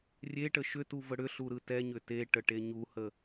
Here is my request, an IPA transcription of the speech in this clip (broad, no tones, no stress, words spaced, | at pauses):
rʲeʈə ʃʏtuvə ɽʏɬuɾɯ tɛɲʏ teʈəʈe ɲuhə